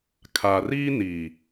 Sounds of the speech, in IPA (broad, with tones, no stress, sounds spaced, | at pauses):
kʰ a˨ r iː˦ n i˨